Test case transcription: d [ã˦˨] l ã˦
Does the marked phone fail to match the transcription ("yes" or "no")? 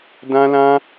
yes